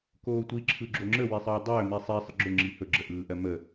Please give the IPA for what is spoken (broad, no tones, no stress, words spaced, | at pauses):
koːtʷi ǁʰɯɡ͡ǁoŋ͡ǁə wisˤɯːdˤɵː misˤi sˤəɡ͡ǁɵ ŋ͡ǁihɵ ɡ͡ǁəʔɯːʔɜmə